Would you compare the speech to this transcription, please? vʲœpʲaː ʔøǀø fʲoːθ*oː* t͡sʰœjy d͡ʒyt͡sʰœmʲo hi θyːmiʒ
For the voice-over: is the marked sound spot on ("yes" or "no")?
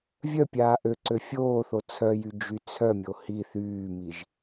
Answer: no